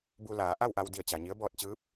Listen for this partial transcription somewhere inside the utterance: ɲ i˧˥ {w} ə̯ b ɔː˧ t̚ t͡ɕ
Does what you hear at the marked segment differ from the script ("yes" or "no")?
yes